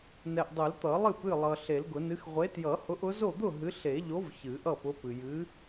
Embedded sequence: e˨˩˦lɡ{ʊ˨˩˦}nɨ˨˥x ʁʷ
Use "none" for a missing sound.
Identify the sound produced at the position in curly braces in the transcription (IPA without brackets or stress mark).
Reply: ʊ˨˩˦